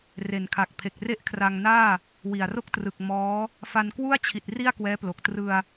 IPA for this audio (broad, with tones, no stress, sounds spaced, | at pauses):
r e˨˩ n kʰ a˨˩ k̚ pʰ e˨˩ k̚ r e˥˩ ʔ kʰ r a˧ ŋ n aː˥˩ | w i˨˩ a̯ r o˥˩ k̚ t r ɯ˨˩ k̚ m ɔː˦˥ | f a˧ n k w u˥˩ a̯ t͡ɕʰ i˨˩ t̚ r i˥˩ a̯ k w ɛː˦˥ p l o˨˩ k̚ t r ɯ˧ a̯